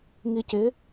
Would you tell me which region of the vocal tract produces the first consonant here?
velum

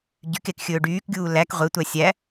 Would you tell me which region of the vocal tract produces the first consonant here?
palate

